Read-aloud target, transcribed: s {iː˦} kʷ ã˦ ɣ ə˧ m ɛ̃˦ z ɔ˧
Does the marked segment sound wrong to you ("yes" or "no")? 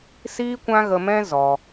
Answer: no